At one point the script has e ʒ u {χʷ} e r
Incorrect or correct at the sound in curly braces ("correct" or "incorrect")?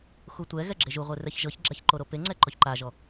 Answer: incorrect